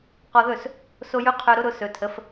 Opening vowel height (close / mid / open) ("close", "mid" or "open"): mid